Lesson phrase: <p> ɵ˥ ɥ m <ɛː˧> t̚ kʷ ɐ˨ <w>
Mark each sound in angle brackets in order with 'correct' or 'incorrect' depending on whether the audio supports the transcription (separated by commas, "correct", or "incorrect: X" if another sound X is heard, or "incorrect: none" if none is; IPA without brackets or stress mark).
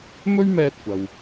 incorrect: m, correct, correct